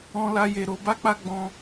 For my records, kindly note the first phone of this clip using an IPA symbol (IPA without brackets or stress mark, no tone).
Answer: ɔ̃